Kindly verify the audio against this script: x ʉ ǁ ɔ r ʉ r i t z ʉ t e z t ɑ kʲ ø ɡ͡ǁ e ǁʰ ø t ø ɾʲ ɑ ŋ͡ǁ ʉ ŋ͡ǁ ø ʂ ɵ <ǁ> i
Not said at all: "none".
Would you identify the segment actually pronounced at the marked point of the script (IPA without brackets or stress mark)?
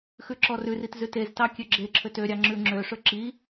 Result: ǁ